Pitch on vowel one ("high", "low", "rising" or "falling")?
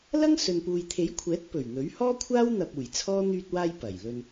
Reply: high